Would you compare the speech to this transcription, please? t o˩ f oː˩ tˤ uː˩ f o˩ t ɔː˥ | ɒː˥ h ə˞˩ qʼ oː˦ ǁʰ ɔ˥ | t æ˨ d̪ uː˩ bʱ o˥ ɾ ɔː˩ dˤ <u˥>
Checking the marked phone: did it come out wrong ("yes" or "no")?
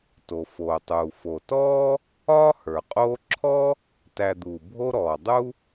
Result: no